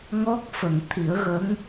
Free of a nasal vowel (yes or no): yes